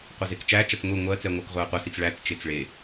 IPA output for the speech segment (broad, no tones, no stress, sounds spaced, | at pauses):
qʷ ɐ z e k t͡ʃ æ t͡ʃ ɐ t͡s ŋʷ i ŋʷ ɜ t͡s ɛ ŋʷ ɜ k ʁʷ ɛ ə̯ qʷ ɐ s i t͡s ɭ æ t͡s t͡ʃ e t͡s ɭ e